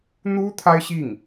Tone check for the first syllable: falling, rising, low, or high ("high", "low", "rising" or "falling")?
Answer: high